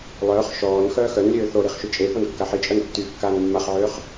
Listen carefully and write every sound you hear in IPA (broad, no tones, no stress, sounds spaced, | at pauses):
lˠ œː χ ʃ ɔː n x œː x œ n lʲ øː θ o ɾ i χ ʃ y t͡ʃʼ e f o n kː a ħ i t͡ʃʼ œ n tː y kː aː n mː a χ ʕ øː χ